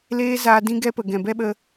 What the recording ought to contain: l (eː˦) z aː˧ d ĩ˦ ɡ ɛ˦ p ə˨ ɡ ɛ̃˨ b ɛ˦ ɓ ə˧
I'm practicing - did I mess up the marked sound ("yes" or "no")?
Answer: no